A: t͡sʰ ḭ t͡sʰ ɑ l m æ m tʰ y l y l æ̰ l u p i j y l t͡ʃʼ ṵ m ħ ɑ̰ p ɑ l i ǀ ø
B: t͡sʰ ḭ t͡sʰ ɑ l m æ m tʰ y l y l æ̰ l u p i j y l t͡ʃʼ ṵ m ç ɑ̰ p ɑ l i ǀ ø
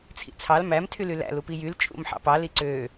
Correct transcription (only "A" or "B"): A